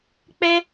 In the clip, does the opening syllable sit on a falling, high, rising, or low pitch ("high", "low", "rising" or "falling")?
high